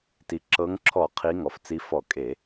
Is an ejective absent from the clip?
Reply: no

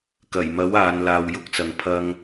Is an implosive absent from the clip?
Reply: yes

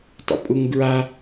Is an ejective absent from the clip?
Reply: no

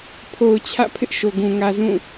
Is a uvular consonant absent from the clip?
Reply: yes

